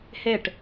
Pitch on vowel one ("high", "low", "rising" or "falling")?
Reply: falling